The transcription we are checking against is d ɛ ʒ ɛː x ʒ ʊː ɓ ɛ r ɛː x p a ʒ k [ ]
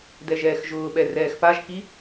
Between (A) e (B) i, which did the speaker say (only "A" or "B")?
B